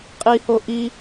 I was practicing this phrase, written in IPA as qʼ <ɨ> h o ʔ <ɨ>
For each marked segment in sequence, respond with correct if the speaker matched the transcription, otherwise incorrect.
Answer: incorrect, incorrect

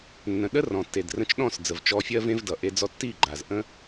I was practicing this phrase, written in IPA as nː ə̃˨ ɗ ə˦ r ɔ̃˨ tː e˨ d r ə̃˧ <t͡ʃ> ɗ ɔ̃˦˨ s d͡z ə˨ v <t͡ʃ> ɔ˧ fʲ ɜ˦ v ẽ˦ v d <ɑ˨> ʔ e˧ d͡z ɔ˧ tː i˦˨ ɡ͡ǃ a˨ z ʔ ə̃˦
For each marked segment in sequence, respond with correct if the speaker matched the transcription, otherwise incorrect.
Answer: correct, correct, incorrect

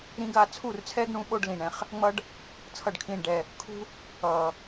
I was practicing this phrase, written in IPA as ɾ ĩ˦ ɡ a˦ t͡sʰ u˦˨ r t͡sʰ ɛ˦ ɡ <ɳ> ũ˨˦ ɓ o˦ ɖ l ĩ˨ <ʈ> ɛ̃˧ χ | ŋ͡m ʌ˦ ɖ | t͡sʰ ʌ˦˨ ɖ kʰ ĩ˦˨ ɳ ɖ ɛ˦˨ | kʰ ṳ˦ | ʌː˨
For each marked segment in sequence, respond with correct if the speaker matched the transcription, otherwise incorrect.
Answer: correct, incorrect

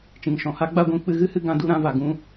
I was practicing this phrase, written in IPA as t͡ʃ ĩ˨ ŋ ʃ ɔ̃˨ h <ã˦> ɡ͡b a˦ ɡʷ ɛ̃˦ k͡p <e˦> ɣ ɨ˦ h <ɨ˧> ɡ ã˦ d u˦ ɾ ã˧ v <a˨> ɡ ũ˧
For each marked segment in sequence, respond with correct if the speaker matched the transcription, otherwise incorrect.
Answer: incorrect, incorrect, correct, correct

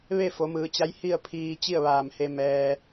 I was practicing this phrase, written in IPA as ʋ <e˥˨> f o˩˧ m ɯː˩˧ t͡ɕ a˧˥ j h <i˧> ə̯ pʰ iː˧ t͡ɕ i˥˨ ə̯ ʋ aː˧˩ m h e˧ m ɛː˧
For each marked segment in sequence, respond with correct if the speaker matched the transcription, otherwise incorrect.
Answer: correct, incorrect

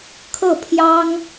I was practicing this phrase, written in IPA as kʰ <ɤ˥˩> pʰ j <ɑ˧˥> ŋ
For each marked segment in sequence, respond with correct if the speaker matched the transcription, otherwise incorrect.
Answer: correct, incorrect

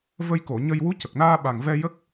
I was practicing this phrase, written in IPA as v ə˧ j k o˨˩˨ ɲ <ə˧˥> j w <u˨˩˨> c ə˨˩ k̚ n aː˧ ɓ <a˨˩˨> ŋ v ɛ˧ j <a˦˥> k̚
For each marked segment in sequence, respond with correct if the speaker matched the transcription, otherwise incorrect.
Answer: incorrect, incorrect, incorrect, incorrect

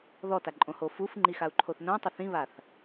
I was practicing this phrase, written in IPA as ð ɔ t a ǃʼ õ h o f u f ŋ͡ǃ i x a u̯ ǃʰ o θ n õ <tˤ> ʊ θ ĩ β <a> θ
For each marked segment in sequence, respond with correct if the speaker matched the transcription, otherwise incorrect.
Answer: correct, correct

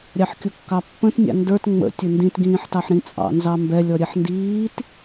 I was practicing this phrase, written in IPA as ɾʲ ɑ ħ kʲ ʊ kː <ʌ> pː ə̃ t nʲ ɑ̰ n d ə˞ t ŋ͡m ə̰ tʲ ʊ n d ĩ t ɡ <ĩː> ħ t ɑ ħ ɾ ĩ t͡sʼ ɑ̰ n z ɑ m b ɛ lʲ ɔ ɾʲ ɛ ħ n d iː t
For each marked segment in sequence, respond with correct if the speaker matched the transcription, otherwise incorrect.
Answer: incorrect, correct

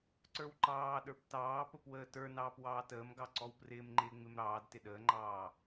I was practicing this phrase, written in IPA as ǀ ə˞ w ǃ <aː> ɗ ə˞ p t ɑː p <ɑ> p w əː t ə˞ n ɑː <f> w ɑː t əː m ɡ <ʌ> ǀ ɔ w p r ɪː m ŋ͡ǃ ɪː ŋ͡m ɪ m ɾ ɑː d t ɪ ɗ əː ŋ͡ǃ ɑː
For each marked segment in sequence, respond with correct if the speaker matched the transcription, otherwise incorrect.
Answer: incorrect, incorrect, incorrect, incorrect

